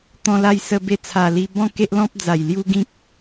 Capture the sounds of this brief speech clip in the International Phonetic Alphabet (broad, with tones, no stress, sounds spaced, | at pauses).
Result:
t̪ ɔ̃˧ l a˧ j s ə˧ b e˧ t͡sʰ a˨˩ l i˧ b ɔ̃˥˧ k e˦ ʔ l ɔ̃˦ p̚ d͡z a˨˩ j l j u˦ ɡ ĩ˦ k̚